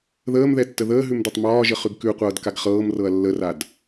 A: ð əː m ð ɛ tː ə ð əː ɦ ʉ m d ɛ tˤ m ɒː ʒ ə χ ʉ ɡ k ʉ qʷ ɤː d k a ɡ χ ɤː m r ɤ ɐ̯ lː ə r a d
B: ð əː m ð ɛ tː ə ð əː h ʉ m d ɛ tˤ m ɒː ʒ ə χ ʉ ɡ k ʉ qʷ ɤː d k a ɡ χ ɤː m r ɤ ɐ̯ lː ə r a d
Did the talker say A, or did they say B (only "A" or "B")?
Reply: A